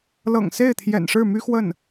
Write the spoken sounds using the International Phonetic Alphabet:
lɤ̰˨˩ŋse˥˩ɪ̯t̪ʰjɛ̰˨˩n ʂɻ̩˥˩my˥xwə˥˩n

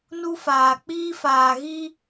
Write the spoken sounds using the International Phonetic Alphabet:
nu˦faː˨ k͡piː˦faː˨ ɣi˦

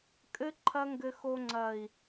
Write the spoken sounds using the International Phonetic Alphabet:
kʼɘ˦ ǃʰɐ˦ŋɡɘ˧xo˧ ŋ͡ǀɐ˨i̯

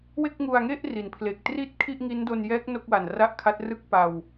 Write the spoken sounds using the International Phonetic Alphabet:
we˥˩k̚ŋu˧a̯ŋe˥˩ʔ ri˩˦npʰle˨˩k̚ tri˥˩t̚ kʰi˥˩ʔŋi˦˥ndo˧njɛː˦˥k̚ no˥˩k̚wa˨˩n ra˥˩ʔkʰa˦˥t̚rɯ˥˩k̚ pa˧w

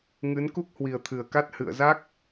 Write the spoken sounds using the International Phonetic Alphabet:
ŋɨ˨˦n ku˦˥k̚hwi˨˩ə̯t̪ʰɨ˨˩ə̯ka˦˥t̚ hɨ̰˧˨ə̯za˦˥k̚

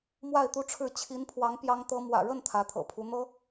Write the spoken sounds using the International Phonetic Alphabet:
mwa˥˩ɪ̯t̪u˥ʈ͡ʂʰɻ̩˥˩ t͡ɕʰi˧˥npʰwɑ˧˥ŋ pjɑ˥ŋt̪ɤ˥ mwä̰˨˩ɻə˥˩n t̪ʰä˧˥t̪ʰɤ̰˨˩ pʰu˧˥n̪ɤ˥

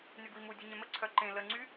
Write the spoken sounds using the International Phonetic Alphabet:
nyɡwimu dʲœɲɛ̃mə ǀʰœǃẽ lə ŋ͡ǀy

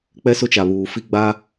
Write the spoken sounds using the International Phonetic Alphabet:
k͡pɛ˦sʊ˦t͡ʃa˨ βuː˨fi˦ɡ͡ba˦

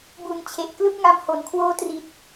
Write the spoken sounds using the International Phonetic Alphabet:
bu˨˩nt͡ɕʰe˨˩ʔ klɯ˥˩k̚ŋa˧mho˩˦nkʰwoː˦˥ tri˨˩t̚

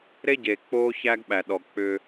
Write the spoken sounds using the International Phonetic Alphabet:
ɾe˦ɟe˨ k͡po˦ çæ˦ɡ ɓæ˨ɗɔ˨ k͡pʏ˦

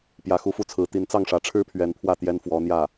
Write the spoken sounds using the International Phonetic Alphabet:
pjä˧˥xu˧˥fu˥˩t͡sʰɹ̩˧˥ t̪i˧˥nt͡sɑ˥˩ŋʂä˧˥ʈ͡ʂʰɻ̩˥ pʰɥɛ˧˥npʰwä˥˩ t̪jɛ˥nfwɔ˧˥n̪jä˥˩

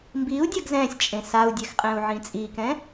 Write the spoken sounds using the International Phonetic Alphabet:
mbiu̯dʲaɡ zɛ̃sʲ t͡ʃʼẽsau̯dʲɛx qʼɛ̃u̯ʕĩt͡sʼikɛ̃

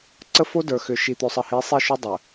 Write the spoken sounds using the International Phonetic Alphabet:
ǀə˦fo˦ də˞˨xʏ˨ ʃi˨t̪ø˨sˤə˨hi˨˦ sˤi˦˨ʃʏ˦dˤə˨

